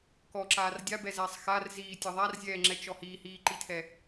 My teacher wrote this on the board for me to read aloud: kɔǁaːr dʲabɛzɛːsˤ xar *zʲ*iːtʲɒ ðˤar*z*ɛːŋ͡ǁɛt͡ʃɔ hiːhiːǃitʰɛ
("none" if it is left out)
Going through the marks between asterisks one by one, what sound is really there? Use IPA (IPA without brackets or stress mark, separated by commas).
z, zʲ